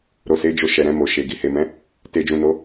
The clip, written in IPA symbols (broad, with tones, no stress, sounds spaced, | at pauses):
ɾ o˨ s e˨˦ d͡ʒ o˧ ʃ ɛ˨ ɾ ɛ̃˧ m o˨ ʃ e˨ ɡ i˨ h e˨ m ɛ̃˨˦ | t e˨ d͡ʒ ũ˨ n o˨˦